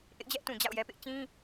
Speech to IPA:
ʔ ɪ˦ ʔ d͡ʑ ɛ˦ ʔ t ũ˨ d͡ʑ a̰˦˨ ʊ̯ j ɛ˦ p ɪ˦ ʔ t͡ɕ ĩ˦

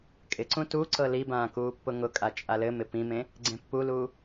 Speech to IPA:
kʼ ɪ ǀ ũ t u ǀ ɤ l i b ãː k uː pː ʊ ŋ ʊ kʼ a t͡ʃʼ a l ɘ m ɪ p ĩ m ẽ | ɡ͡ǀ ẽ pː u l uː

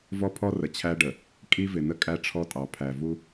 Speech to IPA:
v ɔ˦ pʰ ɔ˦ r ə˨ t͡ɕʰ æ˦ ɖ ə˨ | kʼ i˦ v ɪ˨ n ə˦ kʼ æ˦ ʈ͡ʂʰ ɔ˦ tʼ ɑ˨ pʰ æ˨ v u˦

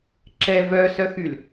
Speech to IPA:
ǁ ɛ v œ s œ x y l

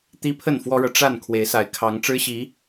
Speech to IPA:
t̪ i˦ pʰ ə˥˨ n f w ɔ˦ ɻ ɤ˨ ʈ͡ʂ a˥˨ n kʰ w e˨˦ ɪ̯ s a˨˦ ɪ̯ kʰ ɑ˨˦ ŋ ʈ͡ʂ ɻ̩˦ ɕ i˨˦

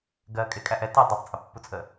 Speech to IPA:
ɡ ɜ kʼ ɪ kʼ æ ʔ ɛ t ɪ dˤ ʌ tˤ t͡sʼ ə pː u t͡sʼ ə

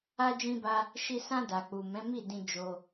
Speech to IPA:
a˦ d͡ʒ ĩ˦ b a˦ | ʃ i˧ s ã˧ d a˨ k͡p u˨ m ɛ̃˨˦ m i˦˨ d ĩ˧ d͡ʒ o˧

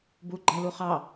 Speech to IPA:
b u ɡ͡ǃ æ l u χ ɑ

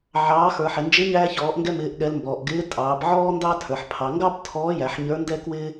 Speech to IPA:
ʕ ɑː˩˧ x ə˞˩ ħ ɪ˩ n d͡ʒ ɪ˧˥ ɲ æː˧ ç ɔː˩˧ ʔ ŋ ɡ ɛ˧ m ɪː˩˧ ʔ ɠ ɛ˩˧ l m b ɔ˩ ʔ ɡ ɪː˧˥ tʼ ɑː˩˧ b ʕ ɔː˥ n d ɑ˥ tʰ ə˞˩ ħ pʰ ɑ˩˧ ŋ ɡ ɑ˥ b tʰ ɔː˧˥ j æ˩˧ ħ ɲ ə˞˧˥ n d ɛ˥ k w ɪː˥

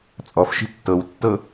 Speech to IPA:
t͡sʼ ɔ f ʃ i̤ tː ɤ w tː ɤ

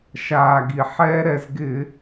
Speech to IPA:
ʃ aː˩ ɡ i˩ ħ ɛː˦ ɾ ɛ˧˩˧ z ɡ ɪː˧˩˧

